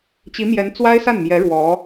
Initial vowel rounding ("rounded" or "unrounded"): unrounded